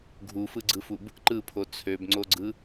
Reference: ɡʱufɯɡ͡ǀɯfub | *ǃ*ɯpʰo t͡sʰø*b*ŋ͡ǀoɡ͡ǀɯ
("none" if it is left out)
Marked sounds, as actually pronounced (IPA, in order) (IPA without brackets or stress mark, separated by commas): ǃ, b